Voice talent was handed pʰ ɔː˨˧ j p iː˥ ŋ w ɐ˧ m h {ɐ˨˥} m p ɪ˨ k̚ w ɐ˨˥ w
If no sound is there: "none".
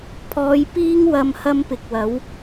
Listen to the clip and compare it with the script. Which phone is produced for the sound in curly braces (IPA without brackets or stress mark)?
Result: ɐ˥